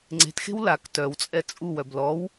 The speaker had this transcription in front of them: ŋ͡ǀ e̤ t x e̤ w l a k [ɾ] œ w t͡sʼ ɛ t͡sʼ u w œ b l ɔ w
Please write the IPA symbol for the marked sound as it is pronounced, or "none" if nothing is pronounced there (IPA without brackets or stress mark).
t